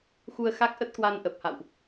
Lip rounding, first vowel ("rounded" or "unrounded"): rounded